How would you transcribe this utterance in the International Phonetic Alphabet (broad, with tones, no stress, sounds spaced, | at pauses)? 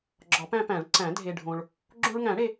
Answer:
ɡ͡ǁ ɒ˨˩˦ p æ̃˧ p æ̃˨˩˦ ɭ ǀ æ̃˨˩˦ dʱ e˧ ɖʱ õ˧ ɭ | ɡ͡ǁ õ˧ ɭ ŋ æ̃˨˩˦ ɽ e˧